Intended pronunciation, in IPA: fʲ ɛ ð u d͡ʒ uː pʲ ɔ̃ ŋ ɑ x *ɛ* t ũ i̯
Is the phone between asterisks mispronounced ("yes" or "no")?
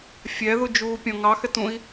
no